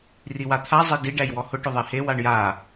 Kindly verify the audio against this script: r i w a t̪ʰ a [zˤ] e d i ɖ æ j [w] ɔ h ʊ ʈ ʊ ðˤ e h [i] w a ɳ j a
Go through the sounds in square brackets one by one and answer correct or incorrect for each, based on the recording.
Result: correct, correct, incorrect: e

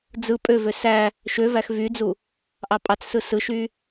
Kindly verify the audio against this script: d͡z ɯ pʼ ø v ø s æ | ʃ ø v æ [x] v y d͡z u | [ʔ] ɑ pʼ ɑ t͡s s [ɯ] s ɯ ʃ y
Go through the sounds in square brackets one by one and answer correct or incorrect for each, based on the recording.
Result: correct, correct, correct

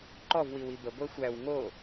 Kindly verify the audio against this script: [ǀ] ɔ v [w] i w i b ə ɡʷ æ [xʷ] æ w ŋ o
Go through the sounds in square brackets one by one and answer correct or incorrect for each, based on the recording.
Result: incorrect: ǃ, correct, correct

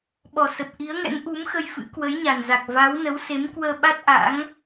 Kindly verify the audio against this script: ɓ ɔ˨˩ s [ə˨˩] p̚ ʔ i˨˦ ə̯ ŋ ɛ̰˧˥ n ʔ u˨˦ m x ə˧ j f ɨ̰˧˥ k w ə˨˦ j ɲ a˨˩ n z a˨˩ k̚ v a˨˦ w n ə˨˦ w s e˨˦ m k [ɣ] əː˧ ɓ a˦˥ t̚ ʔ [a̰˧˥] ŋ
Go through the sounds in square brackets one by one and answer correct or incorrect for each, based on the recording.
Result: correct, incorrect: w, correct

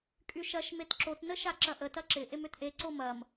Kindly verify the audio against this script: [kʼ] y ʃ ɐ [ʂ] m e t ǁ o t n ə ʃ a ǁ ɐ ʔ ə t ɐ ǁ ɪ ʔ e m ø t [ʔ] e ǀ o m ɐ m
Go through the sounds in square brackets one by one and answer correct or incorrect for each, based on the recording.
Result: correct, incorrect: ʃ, correct

